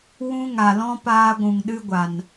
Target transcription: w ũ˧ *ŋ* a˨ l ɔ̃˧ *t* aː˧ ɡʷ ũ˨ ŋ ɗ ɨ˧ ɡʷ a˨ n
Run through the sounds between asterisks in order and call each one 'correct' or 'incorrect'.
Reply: correct, incorrect

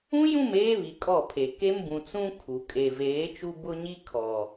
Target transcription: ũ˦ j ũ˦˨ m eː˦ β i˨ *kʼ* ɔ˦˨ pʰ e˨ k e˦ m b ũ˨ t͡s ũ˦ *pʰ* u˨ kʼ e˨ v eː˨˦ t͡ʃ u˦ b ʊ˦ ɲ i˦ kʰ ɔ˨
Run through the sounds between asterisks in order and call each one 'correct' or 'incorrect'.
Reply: correct, incorrect

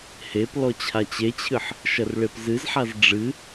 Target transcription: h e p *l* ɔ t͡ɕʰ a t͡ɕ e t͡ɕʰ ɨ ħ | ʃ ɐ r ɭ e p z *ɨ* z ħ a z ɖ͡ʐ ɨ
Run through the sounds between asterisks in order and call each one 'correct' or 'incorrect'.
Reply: correct, correct

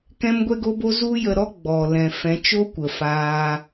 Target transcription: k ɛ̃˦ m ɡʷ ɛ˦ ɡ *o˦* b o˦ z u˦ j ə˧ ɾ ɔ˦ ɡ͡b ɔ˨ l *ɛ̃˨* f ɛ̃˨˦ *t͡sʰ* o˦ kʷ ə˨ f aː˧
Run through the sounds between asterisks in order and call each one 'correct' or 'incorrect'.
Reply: correct, correct, incorrect

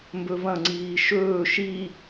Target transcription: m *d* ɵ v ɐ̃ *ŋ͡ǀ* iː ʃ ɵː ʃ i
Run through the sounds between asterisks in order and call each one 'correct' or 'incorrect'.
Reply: incorrect, correct

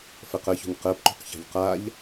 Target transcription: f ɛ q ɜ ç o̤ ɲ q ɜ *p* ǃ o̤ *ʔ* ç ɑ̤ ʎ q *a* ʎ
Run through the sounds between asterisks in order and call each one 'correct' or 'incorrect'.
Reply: correct, incorrect, correct

